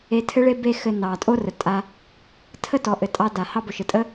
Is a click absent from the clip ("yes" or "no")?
yes